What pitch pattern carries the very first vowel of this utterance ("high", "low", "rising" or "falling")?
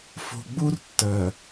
low